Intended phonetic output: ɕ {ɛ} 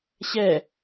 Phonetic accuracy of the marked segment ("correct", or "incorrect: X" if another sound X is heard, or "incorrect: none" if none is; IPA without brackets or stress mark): correct